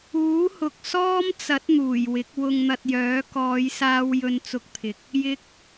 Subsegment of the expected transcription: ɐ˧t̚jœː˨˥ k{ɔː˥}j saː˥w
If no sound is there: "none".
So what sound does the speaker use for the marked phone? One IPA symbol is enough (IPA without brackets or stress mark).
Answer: ɔː˨˧